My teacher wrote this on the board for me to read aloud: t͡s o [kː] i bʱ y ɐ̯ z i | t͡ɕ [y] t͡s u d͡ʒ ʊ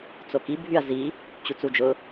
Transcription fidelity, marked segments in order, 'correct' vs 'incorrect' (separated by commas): incorrect, incorrect